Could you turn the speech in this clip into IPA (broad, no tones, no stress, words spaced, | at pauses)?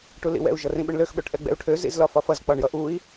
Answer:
ʈulḭwɛ̰u̯ ʒʌrĩɓʏɳløx ɓøʈʔɛɡ͡bɛ̰u̯ʈʰø zḭzlɒfɒfʌz k͡pɒɳjʌʔui̯